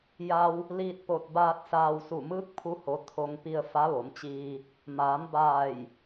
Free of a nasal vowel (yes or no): yes